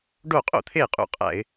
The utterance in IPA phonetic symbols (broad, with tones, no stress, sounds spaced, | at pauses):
ɖ o˥˩ qʼ o̰˥˩ t̪ʰ e˥˩ qʼ ṵ˧˩˧ qʼ æ̰˧˩˧ ɪ̯